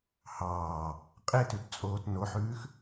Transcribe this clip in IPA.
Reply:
h ɑː | qʼ e t ʉ t t͡sʼ oː t n o ħ ʉː x

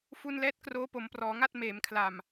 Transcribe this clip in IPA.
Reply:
f u˧ n l ɛː˦˥ t̚ k r oː˦˥ p o˩˦ m p r ɔː˩˦ ŋ a˥˩ t̚ m eː˩˦ m kʰ l a˨˩ m

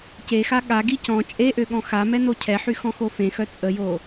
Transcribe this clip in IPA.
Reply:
c e x a ɠ a ɡ i c ɔ̃ t͡ʃʼ e ʔ ø ɠ ɔ̃ x a m ɛ n o cʰ ɛ ħ y x ɔ̃ x o f ẽ x œ t͡sʼ ə j o

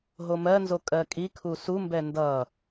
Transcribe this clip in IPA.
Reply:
ɦ o m ɜ n z o kʼ ɜ kʼ i kʰ u s u m b ɛ n d ʌ

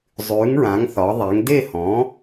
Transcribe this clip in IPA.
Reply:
zˤ ʉː˩˥ ŋ ɹ ã˩˥ ŋ θ ɒ˩˥ ðˤ e˩˥ ŋ d e˥˩ h ɔ̃˩˥

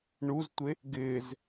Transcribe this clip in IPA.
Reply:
ɳ u z tʷ e | ɡ ɪː z

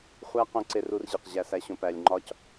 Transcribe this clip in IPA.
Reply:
χʷ æ˦ q õ˧ ǀ e˧ r u˧ r ʑ i˨ q ʑ æ˧ s æ˧ ɕ õ˧ p æ˧ lʲ ŋ͡ǃ ɒ˦ c

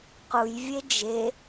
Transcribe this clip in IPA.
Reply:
q u j vʲ e d͡ʒ e

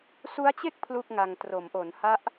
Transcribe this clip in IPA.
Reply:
s u˦˥ a̯ t͡ɕ e˥˩ k̚ pʰ l u˥˩ k̚ ŋ a˧ ŋ t r o˩˦ m ʔ o˩˦ n h a˦˥ ʔ

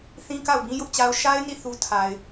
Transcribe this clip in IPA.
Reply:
θ ĩ˦ k a˦˨ ʊ̯ b ĩ˦ j ʊ˦ ʔ t͡ɕ a˦ ʊ̯ ʃ a˦ ɪ̯ n i˦˨ θ u˦ tʰ a˨ ɪ̯

